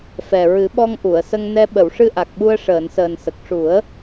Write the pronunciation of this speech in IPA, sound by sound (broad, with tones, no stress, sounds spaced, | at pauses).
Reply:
f ɛ˨˩ ɹ ɨ˨˩˦ ɓ ɔ˧ ŋ ʔ u˨˩˨ ə̯ s ə˧ ŋ n ɛ˧ ɓ ə˨˩˨ w ʂ ɨ˧ ʔ a˨˩ k̚ ɓ u˧ ə̯ ʂ əː˨˩˨ n s əː˨˩ n s ə˨˩ k̚ ʂ u˨˩˦ ə̯